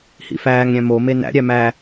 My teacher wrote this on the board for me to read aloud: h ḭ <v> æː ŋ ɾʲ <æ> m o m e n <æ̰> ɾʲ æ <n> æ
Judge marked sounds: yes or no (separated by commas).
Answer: no, no, yes, no